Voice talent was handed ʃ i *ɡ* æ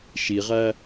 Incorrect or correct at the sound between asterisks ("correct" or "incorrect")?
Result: incorrect